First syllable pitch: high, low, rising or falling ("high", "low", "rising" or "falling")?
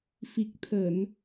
low